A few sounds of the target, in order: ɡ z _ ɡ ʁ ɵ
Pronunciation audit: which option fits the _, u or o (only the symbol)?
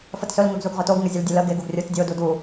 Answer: u